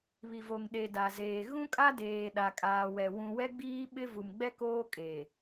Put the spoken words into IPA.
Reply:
β i˨ v o˨ ŋ ɗ e˨ d a˨ z eː˨ ɣ ũ˦ kʼ a˦ d eː˨ ɗ a˨ kʼ aː˨ w ɛ˨ w ũ˨ w ɛ˦ ɡ͡b iː˦ ɓ ɪ˦ v u˨ m ɡ͡b ɛ˦ k oː˦ kʼ e˨

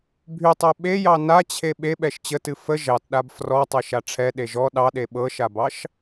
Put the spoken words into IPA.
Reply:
bʱ y tˤ ɛ ɓ e j ɑ n a t͡ɕʰ e ɓ e ɓ ɛ ʃ t͡ɕ ə t ɨ f ə ʒ ɑ t ɗ a b f r ɔ tˤ ɤ ʃ a ʈ͡ʂʰ ɛ ɗ e ʒ ɔ ɗ ɑ ɗ e ɓ ɤ ʃ a b ɑ ʃ

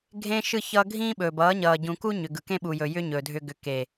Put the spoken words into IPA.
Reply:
ɡʱ ẽ˦ ʃ ɯ˦ ç ʌː˦ ɡʱ ĩː˦ ɓ ɵː˨ b ʌː˨˦ ɲ ʌː˨ ɟ ũ˨ k u˦ ɲ ʏ˨ ɡ ɯ˨ k ẽ˦ ɓ u˨ j ɵ˨ j ʏ˦ ɲ ɵ˨ dʱ ʏ˦ ɡ ʏ˨ k e˨

